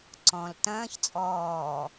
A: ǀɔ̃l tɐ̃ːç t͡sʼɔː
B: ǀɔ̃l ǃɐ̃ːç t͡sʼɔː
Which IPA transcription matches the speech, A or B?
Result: A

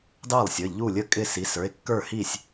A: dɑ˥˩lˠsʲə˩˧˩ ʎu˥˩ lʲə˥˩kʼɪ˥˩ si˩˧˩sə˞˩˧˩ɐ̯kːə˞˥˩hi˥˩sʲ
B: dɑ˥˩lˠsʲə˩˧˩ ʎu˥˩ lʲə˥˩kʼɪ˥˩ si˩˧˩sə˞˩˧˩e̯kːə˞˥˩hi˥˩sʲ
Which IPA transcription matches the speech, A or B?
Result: B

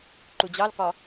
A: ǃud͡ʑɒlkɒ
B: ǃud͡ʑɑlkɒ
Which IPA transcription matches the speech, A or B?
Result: B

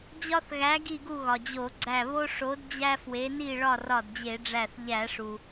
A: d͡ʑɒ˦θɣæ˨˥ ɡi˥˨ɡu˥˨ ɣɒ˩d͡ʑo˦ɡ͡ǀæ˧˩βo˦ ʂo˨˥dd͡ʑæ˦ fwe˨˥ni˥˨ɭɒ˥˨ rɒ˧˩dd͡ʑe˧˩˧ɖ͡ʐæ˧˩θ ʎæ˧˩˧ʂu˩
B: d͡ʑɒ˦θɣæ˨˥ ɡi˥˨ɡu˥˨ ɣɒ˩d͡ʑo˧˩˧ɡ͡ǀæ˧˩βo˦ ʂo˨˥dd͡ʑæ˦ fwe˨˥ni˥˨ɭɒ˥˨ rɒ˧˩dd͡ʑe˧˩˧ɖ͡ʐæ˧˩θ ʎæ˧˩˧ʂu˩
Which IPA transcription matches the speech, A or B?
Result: B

